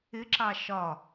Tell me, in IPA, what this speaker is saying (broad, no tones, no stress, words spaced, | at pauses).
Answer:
ɪǁɑ ʃɒ